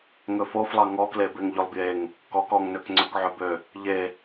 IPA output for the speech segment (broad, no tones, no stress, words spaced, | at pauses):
ŋɵfoflˠɑ ŋɔkle beŋʎølˠbjeŋ | kɔk ɔŋnøk ŋ͡ǀɵkʕɵbø | ʎe